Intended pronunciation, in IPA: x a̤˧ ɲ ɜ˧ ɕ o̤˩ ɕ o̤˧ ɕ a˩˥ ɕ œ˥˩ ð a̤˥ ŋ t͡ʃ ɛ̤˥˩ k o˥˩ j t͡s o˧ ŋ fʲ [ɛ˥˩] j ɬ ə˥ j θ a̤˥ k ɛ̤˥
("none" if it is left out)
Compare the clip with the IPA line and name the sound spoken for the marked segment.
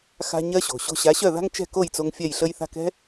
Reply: ɛ˥˩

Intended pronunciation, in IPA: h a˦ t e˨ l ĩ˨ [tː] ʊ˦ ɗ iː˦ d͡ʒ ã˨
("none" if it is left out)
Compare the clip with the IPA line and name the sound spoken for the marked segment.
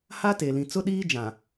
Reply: t͡s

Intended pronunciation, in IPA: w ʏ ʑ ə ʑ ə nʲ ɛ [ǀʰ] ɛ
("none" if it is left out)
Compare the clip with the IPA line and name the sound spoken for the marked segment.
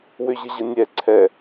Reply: ǀʰ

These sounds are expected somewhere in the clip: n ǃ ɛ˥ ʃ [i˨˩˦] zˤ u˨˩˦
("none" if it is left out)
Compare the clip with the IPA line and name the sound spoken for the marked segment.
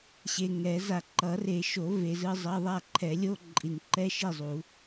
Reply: i˥˨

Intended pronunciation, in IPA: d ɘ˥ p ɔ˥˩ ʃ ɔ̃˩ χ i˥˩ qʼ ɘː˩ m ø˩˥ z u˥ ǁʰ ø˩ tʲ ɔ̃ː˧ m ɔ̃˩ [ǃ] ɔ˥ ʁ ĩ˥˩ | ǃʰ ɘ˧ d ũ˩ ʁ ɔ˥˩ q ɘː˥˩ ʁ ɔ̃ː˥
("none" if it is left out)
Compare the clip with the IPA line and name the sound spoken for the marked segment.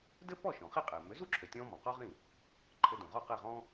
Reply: q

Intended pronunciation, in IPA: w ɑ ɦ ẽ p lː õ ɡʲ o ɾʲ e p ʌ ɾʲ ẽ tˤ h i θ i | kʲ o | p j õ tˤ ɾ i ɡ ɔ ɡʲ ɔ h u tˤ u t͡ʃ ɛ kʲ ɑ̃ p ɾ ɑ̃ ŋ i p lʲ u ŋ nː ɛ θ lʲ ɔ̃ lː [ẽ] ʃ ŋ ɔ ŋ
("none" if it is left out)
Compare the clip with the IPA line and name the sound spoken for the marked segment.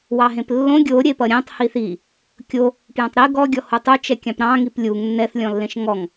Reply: ẽ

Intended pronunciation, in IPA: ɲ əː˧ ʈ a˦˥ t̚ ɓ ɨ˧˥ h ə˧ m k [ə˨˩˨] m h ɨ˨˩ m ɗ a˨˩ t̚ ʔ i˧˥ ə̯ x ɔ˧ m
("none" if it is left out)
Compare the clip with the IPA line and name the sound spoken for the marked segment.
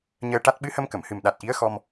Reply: ə˨˩˨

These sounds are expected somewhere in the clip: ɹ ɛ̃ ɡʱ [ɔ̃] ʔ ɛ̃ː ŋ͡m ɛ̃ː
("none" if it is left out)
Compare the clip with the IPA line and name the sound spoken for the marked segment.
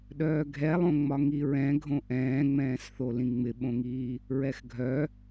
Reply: õ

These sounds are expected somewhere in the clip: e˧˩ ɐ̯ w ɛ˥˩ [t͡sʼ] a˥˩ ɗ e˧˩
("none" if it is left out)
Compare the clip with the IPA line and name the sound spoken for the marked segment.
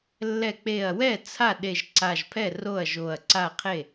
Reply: t͡sʰ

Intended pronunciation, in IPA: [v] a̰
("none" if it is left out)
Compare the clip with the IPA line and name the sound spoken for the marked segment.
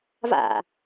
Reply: v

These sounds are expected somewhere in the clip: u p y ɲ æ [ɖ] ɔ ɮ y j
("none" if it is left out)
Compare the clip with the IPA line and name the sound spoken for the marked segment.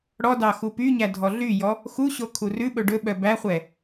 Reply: dʱ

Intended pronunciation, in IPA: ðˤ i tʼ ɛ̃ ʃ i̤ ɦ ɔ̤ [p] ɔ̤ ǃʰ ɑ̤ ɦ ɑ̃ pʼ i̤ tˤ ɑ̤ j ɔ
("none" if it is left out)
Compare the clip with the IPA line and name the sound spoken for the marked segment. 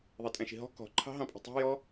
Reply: k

